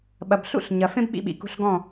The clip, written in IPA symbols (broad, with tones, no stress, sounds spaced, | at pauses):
ɓ ɐ˨ b ɬ ṵ˦˨ ɬ ɲ ɐ˨ f ẽ˦ b ɓ ḭ˧ ɓ ḭ˨ k ṳ˧ ɬ ɡ ɔ̃˦˨